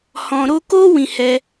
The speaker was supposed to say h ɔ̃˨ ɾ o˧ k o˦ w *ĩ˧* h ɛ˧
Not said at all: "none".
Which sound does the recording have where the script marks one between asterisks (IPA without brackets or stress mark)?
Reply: ĩ˧